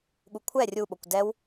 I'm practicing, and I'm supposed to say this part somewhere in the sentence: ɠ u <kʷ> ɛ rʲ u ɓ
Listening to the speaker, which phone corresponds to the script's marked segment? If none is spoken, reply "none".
kʷʰ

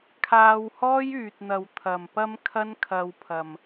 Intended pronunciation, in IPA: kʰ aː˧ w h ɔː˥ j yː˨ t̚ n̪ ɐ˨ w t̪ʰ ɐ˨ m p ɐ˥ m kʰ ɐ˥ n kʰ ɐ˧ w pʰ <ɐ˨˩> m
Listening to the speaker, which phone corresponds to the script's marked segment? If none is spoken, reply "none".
ɐ˨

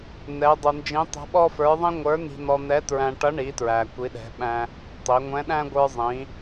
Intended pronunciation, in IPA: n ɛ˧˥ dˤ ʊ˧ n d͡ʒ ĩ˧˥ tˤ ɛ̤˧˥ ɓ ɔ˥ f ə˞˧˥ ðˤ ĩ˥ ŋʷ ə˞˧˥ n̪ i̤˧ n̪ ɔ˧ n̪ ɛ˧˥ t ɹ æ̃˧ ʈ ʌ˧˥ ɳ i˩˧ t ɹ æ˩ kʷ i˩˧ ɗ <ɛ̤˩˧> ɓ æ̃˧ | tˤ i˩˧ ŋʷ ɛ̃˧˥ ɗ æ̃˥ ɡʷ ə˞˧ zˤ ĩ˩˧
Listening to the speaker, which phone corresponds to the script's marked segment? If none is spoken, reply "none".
ɛ̤˩˧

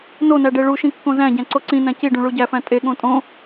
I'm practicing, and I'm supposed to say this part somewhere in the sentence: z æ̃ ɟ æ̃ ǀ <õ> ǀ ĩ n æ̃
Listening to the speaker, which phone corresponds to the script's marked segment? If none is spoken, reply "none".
o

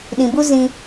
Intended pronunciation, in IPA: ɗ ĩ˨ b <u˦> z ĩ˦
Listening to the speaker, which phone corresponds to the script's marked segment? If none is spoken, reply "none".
u˦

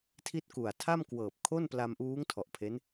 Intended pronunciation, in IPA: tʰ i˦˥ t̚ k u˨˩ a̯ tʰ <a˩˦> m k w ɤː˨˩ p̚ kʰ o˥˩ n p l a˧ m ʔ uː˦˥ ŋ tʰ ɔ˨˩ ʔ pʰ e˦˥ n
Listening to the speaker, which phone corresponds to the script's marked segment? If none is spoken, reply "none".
a˥˩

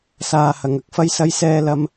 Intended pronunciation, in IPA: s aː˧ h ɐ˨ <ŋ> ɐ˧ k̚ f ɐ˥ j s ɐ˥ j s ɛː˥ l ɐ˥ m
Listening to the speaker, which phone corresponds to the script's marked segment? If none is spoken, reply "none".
ŋ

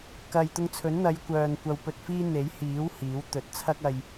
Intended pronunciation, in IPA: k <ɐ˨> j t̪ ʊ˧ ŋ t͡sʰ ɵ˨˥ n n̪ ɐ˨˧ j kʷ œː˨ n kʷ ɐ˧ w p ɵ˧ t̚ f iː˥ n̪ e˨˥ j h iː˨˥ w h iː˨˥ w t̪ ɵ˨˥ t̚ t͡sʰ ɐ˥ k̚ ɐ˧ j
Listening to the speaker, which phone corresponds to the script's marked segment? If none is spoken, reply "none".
ɐ˨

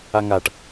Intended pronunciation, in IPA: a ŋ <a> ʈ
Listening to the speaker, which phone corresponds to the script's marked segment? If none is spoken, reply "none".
a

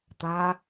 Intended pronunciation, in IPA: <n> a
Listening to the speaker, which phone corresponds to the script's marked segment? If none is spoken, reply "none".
t̪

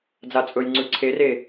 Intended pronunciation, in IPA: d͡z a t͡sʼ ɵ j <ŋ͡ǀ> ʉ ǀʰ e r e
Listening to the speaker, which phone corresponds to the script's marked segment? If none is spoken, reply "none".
ŋ͡ǀ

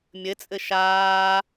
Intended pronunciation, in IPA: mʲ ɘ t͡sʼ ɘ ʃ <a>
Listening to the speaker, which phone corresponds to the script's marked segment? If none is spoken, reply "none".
aː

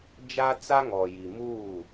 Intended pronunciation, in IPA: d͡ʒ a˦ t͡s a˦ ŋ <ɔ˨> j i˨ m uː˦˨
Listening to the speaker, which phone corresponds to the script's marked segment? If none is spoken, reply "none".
ɔ˨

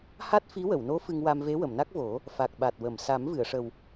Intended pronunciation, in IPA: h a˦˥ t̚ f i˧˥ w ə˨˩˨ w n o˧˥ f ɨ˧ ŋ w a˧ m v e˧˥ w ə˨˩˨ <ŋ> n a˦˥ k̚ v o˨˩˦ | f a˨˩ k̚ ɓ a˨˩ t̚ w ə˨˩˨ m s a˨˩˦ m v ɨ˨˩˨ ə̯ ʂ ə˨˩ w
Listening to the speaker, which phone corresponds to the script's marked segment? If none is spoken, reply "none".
m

